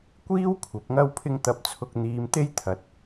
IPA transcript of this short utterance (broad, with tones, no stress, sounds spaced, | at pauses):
kʷ iː˥ w kʷʰ ɐ˨˥ p̚ ŋ ɐ˥ w pʰ ɪ˥ ŋ t̪ ɐ˧ p̚ t͡sʰ ʊ˧ k̚ n̪ iː˨ m t̪ e˧ j t̪ʰ ɐ˨˥ t̚